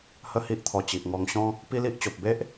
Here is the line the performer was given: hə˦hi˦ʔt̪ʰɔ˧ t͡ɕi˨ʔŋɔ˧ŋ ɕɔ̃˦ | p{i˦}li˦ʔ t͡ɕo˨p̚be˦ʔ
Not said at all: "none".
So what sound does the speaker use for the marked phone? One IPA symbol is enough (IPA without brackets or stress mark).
i˦